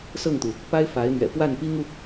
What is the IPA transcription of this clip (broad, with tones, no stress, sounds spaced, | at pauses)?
s ɤ˥˩ ŋ t̪ u˩ | p a˥ ɪ̯ f a˧˥ ɪ̯ n̪ ɥ ɛ̰˨˩ p w a˥˩ n p i˥ ŋ u˨